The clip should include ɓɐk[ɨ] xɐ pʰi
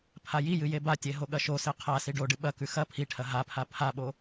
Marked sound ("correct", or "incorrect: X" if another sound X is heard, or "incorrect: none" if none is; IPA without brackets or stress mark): incorrect: ʉ